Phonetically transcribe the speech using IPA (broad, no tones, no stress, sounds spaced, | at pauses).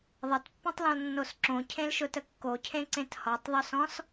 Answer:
ðˤ ʌ t pː ũ tˤ l ɔ̃ l nː o s ǁ õ cʰ ẽ l ʃ ʊ t ə kː o cʰ ẽ ǀ ẽ t h ɔ tˤ ðˤ ɵ s ɔ̃ s